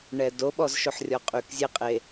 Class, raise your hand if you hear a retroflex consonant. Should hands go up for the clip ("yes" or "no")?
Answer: yes